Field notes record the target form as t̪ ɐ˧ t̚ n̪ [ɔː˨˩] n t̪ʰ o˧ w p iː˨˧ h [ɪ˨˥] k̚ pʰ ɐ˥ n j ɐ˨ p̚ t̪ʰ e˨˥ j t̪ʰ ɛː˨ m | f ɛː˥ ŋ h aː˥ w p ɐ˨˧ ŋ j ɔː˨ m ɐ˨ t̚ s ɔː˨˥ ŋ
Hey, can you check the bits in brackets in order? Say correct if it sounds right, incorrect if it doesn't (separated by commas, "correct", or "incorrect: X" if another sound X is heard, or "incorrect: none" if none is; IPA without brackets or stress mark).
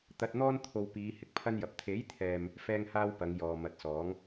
incorrect: ɔː˥, correct